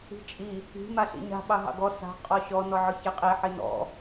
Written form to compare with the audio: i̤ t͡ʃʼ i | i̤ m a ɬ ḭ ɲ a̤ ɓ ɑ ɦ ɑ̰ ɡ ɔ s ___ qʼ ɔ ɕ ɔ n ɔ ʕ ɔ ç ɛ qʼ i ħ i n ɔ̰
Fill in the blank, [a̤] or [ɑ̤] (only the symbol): a̤